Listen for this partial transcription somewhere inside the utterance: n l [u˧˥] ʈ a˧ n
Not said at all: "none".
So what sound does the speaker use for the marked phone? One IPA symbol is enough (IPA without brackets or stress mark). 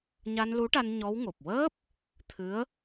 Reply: u˧˥